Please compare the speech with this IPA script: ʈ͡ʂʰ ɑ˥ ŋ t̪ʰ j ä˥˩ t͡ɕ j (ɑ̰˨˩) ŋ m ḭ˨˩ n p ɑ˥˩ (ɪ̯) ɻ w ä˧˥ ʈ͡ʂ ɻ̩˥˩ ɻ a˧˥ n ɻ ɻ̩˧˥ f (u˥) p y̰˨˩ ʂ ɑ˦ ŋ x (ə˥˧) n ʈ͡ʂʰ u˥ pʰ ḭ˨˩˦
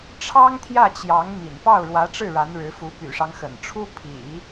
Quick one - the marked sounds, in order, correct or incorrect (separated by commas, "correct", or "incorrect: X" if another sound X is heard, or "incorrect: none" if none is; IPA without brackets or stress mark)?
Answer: incorrect: ɑ˧˥, incorrect: ʊ̯, incorrect: u˧˥, incorrect: ə̰˨˩